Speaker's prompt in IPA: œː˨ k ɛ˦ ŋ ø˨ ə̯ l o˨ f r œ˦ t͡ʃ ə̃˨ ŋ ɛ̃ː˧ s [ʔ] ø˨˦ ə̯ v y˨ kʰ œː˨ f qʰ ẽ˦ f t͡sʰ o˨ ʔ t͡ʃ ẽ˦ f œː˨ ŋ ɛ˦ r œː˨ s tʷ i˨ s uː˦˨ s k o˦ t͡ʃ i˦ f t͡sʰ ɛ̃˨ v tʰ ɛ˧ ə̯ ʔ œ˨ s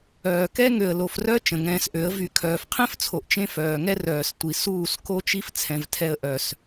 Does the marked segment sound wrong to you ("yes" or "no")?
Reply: no